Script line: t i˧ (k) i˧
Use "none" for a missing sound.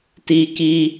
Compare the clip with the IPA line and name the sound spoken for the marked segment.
k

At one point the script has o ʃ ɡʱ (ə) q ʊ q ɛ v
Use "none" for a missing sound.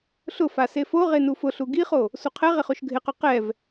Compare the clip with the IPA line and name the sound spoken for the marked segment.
ɪ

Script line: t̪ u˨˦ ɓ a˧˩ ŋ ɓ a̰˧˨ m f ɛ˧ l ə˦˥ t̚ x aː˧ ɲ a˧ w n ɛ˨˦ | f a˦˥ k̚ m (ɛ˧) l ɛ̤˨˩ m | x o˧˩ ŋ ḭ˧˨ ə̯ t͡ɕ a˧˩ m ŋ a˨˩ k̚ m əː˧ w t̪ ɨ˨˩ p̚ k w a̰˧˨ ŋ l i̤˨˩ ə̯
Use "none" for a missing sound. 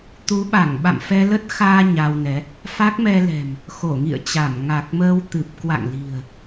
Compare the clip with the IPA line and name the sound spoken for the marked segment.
ɛ˧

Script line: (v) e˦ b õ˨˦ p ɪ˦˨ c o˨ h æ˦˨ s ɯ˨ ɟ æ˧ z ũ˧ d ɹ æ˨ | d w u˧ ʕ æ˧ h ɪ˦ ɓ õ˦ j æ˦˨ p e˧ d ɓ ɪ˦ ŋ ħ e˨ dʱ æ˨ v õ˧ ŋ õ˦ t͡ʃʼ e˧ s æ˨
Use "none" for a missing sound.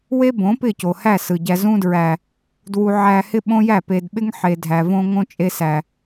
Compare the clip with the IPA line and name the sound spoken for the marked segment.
w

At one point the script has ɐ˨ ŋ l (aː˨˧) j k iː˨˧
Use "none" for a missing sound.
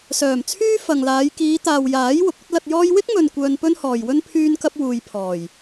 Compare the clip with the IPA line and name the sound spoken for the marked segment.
aː˨˧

